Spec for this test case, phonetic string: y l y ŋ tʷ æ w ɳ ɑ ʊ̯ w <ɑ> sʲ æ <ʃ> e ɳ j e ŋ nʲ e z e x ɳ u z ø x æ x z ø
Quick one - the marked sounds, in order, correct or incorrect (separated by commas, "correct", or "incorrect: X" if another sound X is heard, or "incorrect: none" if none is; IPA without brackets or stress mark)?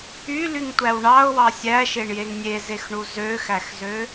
correct, correct